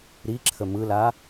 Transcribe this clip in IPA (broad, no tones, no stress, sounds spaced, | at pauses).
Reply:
ɾ i ǁʰ ə m ɯ l a